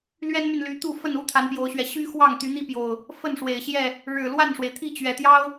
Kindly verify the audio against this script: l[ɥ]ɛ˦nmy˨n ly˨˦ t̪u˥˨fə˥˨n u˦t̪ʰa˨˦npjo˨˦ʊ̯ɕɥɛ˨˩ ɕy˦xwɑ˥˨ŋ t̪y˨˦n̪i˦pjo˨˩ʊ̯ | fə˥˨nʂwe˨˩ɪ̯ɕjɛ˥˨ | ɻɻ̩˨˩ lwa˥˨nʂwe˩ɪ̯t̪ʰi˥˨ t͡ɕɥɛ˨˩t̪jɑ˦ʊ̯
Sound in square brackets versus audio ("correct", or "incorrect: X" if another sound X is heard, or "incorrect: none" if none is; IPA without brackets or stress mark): correct